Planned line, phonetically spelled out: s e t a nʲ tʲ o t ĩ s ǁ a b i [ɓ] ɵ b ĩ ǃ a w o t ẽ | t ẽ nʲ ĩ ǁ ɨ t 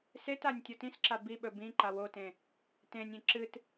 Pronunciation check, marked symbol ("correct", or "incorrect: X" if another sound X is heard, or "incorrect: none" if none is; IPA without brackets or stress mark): correct